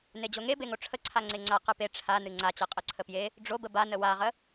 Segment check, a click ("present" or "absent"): present